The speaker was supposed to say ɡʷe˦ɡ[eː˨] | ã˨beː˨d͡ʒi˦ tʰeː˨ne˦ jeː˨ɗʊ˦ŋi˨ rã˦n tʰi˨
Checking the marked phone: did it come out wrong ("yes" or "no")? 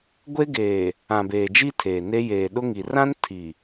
no